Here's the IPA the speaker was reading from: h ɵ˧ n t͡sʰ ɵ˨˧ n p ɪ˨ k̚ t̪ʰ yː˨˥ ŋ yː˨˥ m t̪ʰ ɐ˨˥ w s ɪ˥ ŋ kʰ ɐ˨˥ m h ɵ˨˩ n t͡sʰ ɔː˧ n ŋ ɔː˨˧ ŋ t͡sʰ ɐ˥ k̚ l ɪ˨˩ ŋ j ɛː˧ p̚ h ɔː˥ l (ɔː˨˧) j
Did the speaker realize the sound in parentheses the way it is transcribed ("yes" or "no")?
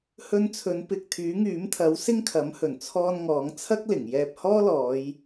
yes